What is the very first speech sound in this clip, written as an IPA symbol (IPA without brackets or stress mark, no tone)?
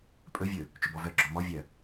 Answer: pʼ